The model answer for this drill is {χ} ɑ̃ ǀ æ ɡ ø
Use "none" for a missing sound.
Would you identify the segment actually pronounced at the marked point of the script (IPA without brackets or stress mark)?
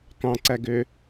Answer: k